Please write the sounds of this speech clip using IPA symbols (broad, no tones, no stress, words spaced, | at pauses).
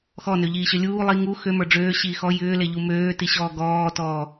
xɔnøʎiːɕø lʲuː lˠi ŋu xømə˞ ɖ͡ʐøːɕiː xɔ jʏːleʎu møːtiɕɔː ɡɔːtɔː